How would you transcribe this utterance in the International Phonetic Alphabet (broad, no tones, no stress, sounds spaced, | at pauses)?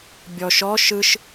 bʲ ɔ ʃ ɔ ʃ ɯ ʃ